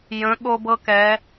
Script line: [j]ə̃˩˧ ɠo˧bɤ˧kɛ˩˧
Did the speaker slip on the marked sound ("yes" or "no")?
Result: no